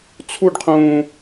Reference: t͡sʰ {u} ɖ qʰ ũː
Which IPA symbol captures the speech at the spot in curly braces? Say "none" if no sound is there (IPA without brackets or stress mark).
u